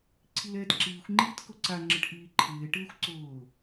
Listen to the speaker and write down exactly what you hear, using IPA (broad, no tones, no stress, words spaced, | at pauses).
ǀʰilɛːtǁiːxʷŋ͡ǃiːt kʊǀaŋ͡ǁɪʈ ʔiːǃʰɪːʈɪːxʷ ǀʊː